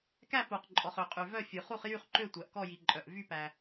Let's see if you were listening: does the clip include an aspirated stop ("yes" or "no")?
no